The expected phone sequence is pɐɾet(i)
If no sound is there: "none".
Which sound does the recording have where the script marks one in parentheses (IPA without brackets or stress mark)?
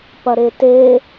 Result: e